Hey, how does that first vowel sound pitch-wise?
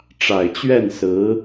low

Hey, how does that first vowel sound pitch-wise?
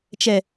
low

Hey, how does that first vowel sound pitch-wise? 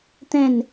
falling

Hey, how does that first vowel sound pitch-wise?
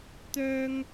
high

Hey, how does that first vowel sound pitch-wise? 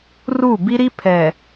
falling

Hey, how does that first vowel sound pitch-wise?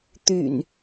low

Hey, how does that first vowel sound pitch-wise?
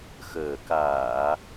low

